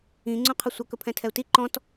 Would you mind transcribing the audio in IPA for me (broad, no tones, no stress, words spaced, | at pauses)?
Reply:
ĩ ŋ͡ǀũqʰəsʷə kɵpʰɛ̃tʰɛu̯ti ǃɔ̃t